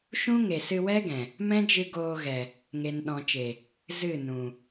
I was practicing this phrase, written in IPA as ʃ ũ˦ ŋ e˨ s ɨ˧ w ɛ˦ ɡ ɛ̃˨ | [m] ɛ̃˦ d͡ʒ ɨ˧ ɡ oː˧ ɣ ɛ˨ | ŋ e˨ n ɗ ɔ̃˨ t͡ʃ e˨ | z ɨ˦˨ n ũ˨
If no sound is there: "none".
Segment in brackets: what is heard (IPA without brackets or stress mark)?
m